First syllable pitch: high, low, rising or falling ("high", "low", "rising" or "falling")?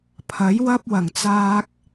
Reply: rising